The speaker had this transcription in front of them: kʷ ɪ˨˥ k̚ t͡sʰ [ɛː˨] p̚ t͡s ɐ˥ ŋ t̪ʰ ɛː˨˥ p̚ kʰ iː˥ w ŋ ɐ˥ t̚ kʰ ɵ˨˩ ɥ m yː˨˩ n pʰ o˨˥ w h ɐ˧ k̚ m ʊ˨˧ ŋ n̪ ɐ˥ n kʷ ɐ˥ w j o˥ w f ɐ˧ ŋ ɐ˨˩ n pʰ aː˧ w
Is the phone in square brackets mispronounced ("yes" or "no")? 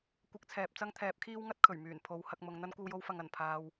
no